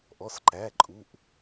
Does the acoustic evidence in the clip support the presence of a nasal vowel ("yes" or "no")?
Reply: no